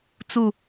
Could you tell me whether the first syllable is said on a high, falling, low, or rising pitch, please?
falling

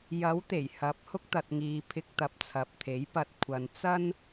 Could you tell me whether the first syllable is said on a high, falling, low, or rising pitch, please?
rising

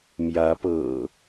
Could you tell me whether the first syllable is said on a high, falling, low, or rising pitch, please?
rising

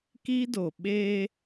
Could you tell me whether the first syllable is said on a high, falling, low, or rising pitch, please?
high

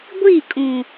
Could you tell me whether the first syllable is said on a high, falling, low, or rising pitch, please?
falling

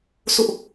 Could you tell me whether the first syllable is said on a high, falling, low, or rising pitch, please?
high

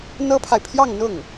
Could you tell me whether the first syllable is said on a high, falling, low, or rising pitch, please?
high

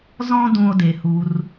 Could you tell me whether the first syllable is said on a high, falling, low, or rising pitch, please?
high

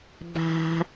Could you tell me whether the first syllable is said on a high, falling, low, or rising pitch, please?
low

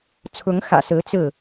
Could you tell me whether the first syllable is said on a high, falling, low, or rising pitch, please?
rising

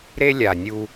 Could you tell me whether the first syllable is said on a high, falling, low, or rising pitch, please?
high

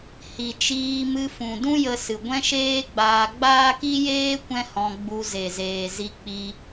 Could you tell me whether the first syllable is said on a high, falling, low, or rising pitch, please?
low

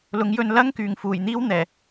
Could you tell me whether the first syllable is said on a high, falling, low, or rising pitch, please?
rising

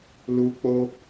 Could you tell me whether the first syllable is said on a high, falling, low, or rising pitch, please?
high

